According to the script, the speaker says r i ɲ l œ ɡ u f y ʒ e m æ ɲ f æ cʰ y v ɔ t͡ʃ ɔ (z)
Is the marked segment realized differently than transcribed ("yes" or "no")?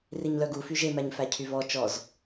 no